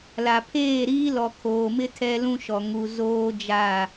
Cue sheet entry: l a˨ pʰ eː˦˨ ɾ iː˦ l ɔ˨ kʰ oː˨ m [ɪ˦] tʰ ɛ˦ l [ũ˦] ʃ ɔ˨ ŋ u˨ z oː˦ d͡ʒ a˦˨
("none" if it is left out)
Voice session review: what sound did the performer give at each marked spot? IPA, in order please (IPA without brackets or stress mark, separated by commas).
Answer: ɪ˦, ũ˦